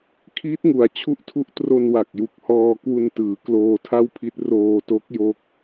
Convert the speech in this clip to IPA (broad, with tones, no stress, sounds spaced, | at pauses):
kʰ iː˦˥ t̚ ŋ u˩˦ a̯ t͡ɕʰ u˦˥ ʔ tʰ u˦˥ ʔ t r o˧ n w a˨˩ k̚ j u˨˩ k̚ h ɔː˧ k w u˧ n t ɯː˩˦ k l oː˧ tʰ a˥˩ w pʰ i˦˥ t̚ r oː˧ t o˦˥ k̚ j o˥˩ k̚